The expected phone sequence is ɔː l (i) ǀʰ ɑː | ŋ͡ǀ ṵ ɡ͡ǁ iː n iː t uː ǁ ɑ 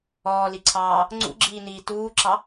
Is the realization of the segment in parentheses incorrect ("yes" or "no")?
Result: no